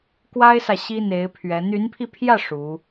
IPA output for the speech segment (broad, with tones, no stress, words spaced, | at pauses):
kwa˥ɪ̯sä˨ ɕi˥n̪e˧˥ɪ̯ pʰɥɛ˧˥ n̪y˧˥npʰi˧pʰjä˥˩ ʂu˧˥